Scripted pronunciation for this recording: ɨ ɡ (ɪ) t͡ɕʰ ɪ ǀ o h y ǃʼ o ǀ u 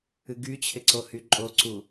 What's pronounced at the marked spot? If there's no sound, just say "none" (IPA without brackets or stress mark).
y